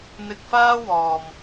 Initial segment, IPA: n̪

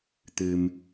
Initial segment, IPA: t̪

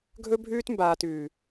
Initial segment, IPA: ɡʱ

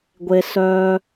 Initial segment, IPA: ɡʷ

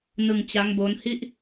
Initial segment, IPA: n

